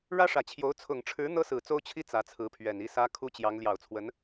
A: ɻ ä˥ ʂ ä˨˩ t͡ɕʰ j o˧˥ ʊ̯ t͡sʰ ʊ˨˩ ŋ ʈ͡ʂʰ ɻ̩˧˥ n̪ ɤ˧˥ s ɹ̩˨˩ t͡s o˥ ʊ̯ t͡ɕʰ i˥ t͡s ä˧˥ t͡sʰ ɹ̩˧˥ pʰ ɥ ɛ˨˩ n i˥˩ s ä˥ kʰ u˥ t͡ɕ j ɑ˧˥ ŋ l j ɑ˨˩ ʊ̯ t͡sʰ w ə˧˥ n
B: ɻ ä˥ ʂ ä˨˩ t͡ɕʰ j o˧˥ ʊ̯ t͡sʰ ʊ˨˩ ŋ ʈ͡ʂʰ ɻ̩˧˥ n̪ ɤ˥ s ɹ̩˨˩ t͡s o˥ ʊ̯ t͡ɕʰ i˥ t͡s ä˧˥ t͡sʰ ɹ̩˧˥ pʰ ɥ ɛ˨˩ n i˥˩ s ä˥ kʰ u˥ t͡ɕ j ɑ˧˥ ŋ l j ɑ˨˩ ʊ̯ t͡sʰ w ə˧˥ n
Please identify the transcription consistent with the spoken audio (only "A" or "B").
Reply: B